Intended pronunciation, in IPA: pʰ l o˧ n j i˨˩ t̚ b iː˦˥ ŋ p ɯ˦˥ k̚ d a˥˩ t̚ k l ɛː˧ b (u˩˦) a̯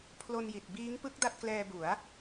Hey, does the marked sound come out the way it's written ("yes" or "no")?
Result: yes